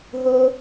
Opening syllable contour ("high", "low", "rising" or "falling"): high